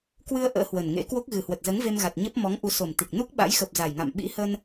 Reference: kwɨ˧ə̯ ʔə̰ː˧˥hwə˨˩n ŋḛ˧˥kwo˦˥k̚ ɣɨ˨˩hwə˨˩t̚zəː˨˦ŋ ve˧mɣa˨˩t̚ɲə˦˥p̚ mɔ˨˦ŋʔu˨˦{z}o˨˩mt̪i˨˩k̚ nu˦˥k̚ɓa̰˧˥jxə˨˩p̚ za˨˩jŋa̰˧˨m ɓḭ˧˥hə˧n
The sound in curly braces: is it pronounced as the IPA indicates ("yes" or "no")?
no